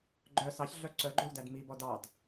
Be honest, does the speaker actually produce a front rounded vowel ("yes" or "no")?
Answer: yes